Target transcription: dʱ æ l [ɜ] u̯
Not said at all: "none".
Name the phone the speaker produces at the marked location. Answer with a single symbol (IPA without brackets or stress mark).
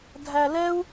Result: ɛ